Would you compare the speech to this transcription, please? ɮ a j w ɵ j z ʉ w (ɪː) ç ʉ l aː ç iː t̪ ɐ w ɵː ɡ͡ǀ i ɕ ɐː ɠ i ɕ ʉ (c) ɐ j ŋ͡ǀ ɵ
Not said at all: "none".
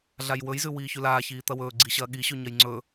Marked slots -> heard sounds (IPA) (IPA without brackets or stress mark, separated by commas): iː, ɲ